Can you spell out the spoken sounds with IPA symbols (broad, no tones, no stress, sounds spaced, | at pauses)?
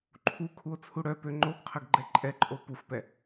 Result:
ǃʰ u kʰ u o̯ t͡sʰ u ɽ œ p ø ŋ͡ǃ o ɡ qʰ ə ɡ ɡ͡ǃ ɛ ǃʼ ɛ ǃʼ o p u f p ɛ